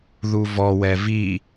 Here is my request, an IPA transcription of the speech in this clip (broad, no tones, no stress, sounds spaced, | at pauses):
ð u v ɔ w ɛ v i